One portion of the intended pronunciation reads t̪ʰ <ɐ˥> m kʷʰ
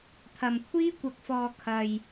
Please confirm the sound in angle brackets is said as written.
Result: no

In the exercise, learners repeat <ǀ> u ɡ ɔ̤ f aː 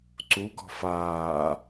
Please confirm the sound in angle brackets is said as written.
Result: yes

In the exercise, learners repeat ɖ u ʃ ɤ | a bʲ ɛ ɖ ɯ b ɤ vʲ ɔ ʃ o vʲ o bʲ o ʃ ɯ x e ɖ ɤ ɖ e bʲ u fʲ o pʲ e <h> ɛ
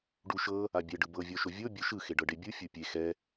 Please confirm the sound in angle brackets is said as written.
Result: no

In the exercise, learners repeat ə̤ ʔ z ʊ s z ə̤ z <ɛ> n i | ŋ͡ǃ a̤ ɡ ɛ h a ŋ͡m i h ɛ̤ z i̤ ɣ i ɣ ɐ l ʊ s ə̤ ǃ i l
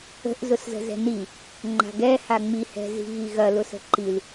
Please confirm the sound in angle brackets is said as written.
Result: no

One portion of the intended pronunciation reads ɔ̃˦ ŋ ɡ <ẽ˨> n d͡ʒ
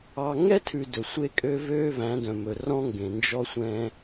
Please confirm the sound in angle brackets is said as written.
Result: yes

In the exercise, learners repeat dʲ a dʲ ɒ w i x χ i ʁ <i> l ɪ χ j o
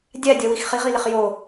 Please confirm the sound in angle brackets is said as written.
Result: yes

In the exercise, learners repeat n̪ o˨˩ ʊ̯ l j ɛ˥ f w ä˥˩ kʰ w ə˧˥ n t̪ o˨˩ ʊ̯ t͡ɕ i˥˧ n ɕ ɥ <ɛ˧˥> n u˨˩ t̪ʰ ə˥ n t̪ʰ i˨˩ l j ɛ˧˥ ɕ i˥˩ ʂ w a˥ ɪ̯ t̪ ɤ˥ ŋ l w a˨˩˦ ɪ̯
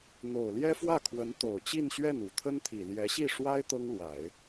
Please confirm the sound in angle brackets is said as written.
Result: no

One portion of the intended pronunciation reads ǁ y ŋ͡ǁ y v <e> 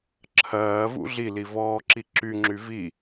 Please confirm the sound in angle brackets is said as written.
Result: no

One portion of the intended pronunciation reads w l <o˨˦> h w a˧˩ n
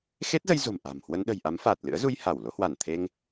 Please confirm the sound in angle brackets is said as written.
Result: yes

